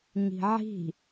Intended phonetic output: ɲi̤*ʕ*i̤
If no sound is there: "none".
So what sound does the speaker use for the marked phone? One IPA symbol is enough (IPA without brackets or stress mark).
ʕ